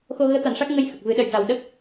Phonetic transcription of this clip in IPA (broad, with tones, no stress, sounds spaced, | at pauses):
x o˧ ɣ əː˧˥ t̪ a˨˩˨ n ʂ a˦˥ k̚ ŋ ə˧ j x ə˨˩ k̚ v ɨ˨˩˦ ɗ ə˨˩ j ʈ a˨˩ w ɗ ə˦˥ k̚